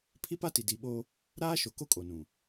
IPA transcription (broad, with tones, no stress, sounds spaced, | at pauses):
pʰ i˦ p a˦ t i˨ d i˨ ɓ o˦ | ɾ aː˦ ʃ o˨ k o˦ kʼ o˨ n ũ˨